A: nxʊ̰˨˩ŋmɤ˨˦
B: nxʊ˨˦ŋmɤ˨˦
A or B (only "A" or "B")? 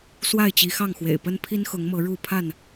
B